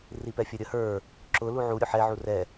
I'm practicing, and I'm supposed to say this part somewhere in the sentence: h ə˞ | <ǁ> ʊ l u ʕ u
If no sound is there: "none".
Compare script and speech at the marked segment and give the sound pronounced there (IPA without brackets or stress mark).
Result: ǁ